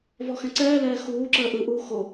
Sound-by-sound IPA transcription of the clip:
vɔxɛ̃ǀɛːlɛː xuːǁəː ʔɯʔuː xo

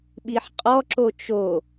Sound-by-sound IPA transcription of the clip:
ɓiħqʼɔǁo t͡ʃo

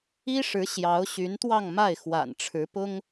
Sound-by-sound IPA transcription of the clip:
i˥ʂɻ̩˧˥ ɕjɑ˧˥ʊ̯ɕy˧˥nt̪wɑ˥˧ŋ ma˥˩ɪ̯xwa̰˨˩n ʈ͡ʂʰɻ̩˧˥pʊ˥ŋ

